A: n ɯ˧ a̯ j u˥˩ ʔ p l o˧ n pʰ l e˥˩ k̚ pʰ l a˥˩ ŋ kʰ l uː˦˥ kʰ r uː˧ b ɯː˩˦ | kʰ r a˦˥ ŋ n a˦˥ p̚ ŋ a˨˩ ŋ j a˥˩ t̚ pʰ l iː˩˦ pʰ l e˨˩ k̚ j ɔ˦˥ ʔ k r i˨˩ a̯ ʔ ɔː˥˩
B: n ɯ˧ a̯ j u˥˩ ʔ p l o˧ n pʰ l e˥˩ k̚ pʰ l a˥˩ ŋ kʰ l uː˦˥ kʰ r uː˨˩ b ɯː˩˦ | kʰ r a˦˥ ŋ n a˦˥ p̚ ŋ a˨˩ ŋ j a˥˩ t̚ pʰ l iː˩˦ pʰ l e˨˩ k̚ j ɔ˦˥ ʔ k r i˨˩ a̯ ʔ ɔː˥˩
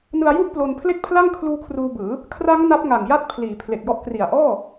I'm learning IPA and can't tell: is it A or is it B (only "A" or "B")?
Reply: A